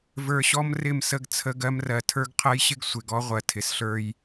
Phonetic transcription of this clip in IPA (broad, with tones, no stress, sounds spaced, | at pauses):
v ə˞˧ ɕ ɔ˦ m r ɪ˦˨ m s ə˦˨ ɡ t͡sʰ ə˧ ɡ ɜ˧ m r ɜ˨ tʰ ə˞˦ ɡ qʰ ɜ˦ j ɕ ɪ˦ ɡ sʷ ɪ˨ ɡ ɔ˦ ʁʷ ɜ˨ tʰ ɪ˨ s ɬ ə˞˧ j